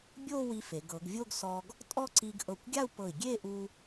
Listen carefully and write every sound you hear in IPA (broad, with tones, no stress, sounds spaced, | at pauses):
bʲ o˥˧ w i˧ f e˩˧ ɡ ɤ˩˧ ɡ vʲ o˥˧ ɡ s ɔ˧ ɡ | tʼ ɔ˥˧ ǀ i˧ ɡ ʔ ɤ˧˩ kʷ ɡʲ a˥˧ u̯ p ɤ˧˩ i̯ ɡʲ e˥˧ ʔ u˧